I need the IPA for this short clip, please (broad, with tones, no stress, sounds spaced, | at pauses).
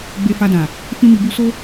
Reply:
ɡ͡b e˨ f a˨ d ã˨ | f ĩ˧ m i˨ b u˧ s o˦